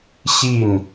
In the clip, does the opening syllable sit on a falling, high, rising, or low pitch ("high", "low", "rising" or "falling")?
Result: falling